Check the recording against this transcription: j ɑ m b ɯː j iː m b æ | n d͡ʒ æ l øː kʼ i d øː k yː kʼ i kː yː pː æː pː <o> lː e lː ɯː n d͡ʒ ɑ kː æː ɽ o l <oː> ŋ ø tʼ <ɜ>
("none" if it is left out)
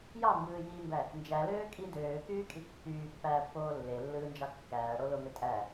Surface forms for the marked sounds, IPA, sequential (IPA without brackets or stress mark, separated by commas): oː, o, æ